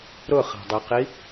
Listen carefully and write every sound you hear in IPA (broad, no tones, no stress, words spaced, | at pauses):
ɾʊχa̤dˤɛqi